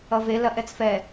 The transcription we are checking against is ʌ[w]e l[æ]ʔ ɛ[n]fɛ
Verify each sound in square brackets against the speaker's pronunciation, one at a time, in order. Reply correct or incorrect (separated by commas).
incorrect, incorrect, incorrect